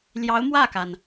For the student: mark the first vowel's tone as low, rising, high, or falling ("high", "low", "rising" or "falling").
rising